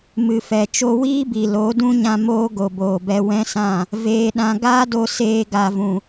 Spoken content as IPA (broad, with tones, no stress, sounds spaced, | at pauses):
m ɨ˨ f ɛ˨ t͡ʃ o˧ w iː˦ b i˨ l o˨˦ d ũ˦ ɲ ã˧ m oː˦ ɡ o˨ b oː˨ b ɛ˧ w ɛ̃˦ s ã˦˨ | v eː˧ ɗ ã˧ ɡ aː˦ d o˧ s eː˧ ɡ a˨ v ũ˨